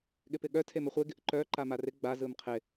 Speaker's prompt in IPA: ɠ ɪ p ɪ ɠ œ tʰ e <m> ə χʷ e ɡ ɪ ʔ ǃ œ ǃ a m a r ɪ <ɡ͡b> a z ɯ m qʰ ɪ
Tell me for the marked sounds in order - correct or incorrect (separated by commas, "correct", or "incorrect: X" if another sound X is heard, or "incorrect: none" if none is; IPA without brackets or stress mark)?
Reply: correct, correct